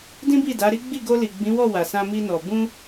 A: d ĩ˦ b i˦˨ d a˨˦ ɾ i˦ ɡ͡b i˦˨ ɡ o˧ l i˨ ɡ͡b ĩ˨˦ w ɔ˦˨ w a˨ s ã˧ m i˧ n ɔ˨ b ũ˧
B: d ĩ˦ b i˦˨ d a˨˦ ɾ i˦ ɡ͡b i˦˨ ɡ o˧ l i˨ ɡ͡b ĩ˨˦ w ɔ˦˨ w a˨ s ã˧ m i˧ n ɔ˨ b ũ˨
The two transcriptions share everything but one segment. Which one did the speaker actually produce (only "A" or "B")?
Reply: A